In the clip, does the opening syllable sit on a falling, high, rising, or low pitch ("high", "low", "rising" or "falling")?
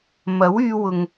rising